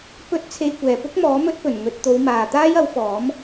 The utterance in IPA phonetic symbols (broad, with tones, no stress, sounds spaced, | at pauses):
p ɵ˧ t̚ t͡sʰ e˧ j kʷ ɛː˨ p ʊ˥ k̚ m ɔː˨˥ m ɵ˥ t̚ p ɵ˨˩ n ŋ ɵ˨˥ t̚ t̪ o˨˧ w m aː˨ t̪ aː˥ j ɐ˨˥ w f ɔː˨˥ m